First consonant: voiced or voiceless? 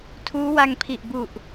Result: voiceless